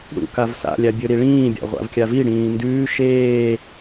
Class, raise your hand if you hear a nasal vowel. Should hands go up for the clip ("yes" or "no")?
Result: yes